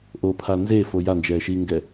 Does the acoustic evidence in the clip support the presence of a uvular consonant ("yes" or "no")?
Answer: no